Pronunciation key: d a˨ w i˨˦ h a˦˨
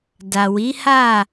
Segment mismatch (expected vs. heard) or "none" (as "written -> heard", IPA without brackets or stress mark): none